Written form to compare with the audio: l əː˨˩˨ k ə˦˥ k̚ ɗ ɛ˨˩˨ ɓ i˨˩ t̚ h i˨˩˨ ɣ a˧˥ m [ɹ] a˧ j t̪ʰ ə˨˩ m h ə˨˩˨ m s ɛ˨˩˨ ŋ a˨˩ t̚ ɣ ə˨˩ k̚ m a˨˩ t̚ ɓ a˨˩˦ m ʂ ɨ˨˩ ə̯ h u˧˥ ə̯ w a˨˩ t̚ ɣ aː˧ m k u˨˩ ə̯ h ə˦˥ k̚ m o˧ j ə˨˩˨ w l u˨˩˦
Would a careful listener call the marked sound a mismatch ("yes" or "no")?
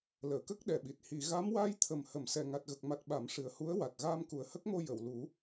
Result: yes